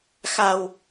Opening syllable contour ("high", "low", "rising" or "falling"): low